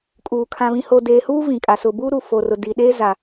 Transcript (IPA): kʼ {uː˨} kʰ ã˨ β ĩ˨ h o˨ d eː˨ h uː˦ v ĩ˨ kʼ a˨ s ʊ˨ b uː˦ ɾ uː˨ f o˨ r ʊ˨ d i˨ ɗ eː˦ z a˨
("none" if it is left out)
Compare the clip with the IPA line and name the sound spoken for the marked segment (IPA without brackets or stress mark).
uː˨